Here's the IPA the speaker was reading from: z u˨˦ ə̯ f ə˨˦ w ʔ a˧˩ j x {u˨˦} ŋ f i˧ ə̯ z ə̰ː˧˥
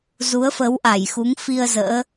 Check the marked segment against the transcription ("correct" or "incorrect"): correct